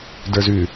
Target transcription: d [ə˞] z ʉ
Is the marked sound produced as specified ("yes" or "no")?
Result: yes